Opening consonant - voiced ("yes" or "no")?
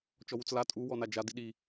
no